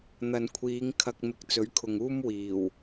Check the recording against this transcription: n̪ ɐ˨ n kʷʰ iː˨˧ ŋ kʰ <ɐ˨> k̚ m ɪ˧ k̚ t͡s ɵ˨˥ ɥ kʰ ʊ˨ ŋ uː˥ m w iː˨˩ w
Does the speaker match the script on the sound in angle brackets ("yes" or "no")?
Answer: no